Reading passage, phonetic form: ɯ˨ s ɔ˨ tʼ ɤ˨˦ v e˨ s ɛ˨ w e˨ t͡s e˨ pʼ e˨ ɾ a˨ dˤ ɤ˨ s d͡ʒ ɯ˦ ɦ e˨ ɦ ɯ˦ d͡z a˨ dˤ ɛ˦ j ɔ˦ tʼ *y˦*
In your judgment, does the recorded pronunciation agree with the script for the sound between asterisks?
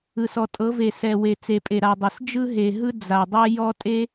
no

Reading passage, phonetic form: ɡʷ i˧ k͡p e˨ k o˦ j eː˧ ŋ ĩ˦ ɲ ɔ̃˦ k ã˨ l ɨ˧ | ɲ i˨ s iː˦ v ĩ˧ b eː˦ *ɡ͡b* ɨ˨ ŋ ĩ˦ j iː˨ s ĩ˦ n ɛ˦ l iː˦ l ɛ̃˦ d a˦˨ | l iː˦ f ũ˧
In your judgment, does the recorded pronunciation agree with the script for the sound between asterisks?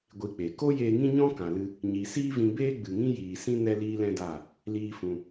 yes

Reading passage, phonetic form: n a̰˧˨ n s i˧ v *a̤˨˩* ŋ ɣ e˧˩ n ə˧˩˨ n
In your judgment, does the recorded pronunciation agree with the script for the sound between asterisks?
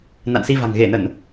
yes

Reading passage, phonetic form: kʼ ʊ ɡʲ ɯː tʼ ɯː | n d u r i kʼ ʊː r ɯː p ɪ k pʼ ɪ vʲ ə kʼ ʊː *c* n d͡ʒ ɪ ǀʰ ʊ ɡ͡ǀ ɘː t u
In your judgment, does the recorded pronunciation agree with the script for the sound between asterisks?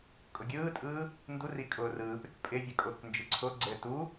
no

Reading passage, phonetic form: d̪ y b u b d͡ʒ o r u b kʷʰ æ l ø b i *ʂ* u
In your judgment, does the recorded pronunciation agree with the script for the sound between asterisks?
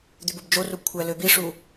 yes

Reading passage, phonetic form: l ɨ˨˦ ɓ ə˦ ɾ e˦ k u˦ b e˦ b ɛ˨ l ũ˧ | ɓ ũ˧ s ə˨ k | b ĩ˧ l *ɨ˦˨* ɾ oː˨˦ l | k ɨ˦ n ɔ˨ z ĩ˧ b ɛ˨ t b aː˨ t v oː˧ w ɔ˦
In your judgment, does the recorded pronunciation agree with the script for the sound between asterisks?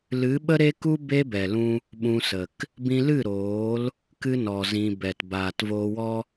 yes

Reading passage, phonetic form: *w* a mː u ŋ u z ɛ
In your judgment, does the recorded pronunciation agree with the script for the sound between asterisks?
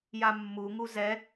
no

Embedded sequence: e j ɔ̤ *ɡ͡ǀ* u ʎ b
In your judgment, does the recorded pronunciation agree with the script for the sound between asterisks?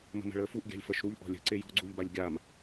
yes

